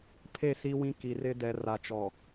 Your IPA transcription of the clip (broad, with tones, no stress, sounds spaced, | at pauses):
pʰ e˦˨ s i˦ w ĩ˦ k i˨ r ɪ˦ d ɛ˨ r a˨ t͡ʃ ɔ˨